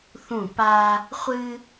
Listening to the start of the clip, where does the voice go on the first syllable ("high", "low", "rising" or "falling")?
falling